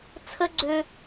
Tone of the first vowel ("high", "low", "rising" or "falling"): high